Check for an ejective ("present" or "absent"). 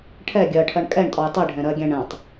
present